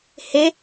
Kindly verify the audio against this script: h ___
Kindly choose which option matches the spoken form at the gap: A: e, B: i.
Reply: A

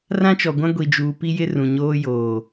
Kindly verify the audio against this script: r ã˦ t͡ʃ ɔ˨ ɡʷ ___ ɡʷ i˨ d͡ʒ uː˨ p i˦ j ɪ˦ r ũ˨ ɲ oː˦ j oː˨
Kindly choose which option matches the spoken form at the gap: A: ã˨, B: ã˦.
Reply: B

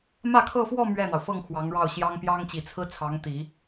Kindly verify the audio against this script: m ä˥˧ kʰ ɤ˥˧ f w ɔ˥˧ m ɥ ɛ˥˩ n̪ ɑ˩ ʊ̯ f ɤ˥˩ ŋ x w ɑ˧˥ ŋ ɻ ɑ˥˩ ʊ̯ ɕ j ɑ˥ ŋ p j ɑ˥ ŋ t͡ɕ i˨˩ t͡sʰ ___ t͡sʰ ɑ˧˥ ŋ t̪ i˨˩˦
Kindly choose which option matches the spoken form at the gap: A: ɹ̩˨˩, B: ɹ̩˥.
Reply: B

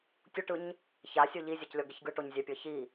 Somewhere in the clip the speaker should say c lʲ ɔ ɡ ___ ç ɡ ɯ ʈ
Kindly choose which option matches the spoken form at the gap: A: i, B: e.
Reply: B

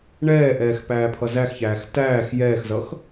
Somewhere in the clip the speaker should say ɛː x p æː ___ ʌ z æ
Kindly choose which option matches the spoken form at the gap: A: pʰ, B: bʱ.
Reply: A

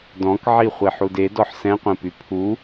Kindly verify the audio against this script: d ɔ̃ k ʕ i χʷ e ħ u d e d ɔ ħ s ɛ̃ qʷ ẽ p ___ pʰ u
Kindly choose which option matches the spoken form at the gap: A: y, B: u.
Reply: A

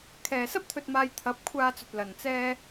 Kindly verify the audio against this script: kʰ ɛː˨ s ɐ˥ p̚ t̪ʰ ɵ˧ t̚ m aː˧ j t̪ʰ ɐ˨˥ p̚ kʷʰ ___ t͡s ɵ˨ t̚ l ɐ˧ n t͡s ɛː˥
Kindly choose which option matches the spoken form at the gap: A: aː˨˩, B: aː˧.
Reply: B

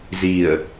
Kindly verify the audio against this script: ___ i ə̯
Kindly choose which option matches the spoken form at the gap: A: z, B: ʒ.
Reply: A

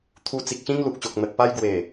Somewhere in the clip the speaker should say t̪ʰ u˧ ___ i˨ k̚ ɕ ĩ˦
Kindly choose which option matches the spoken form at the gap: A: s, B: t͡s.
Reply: B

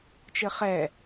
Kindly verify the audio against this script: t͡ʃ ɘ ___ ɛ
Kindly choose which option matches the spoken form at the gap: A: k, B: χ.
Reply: B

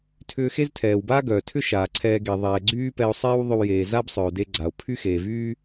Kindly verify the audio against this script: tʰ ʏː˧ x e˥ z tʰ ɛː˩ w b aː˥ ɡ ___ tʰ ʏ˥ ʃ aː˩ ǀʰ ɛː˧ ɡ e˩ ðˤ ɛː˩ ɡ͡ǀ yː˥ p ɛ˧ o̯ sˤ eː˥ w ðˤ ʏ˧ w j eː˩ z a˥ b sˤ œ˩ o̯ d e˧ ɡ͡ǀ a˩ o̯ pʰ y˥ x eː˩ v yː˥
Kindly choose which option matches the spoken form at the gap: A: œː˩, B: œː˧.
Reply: A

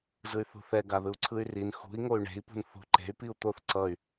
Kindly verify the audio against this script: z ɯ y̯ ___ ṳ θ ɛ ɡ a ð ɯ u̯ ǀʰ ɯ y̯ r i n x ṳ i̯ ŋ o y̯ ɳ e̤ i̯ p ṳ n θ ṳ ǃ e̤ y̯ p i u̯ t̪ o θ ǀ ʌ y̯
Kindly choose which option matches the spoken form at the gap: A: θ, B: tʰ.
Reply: A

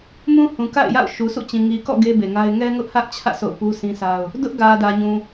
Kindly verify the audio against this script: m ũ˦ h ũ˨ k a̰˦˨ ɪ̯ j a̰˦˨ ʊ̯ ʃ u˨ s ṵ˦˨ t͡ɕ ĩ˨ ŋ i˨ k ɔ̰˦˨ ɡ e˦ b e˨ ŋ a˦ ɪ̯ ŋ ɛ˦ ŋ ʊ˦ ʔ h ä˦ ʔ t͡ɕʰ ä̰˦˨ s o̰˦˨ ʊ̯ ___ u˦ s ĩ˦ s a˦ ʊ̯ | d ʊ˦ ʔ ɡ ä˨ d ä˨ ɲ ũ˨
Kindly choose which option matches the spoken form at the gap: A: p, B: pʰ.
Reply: A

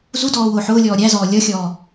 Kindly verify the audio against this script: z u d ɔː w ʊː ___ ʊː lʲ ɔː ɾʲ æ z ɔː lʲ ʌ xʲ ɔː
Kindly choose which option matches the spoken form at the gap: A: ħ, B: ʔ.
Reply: A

